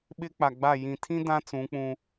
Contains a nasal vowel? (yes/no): yes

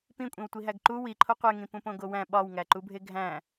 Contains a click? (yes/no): yes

